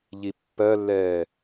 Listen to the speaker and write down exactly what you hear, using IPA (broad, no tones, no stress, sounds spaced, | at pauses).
ʎ i pː ɜ lː ɛː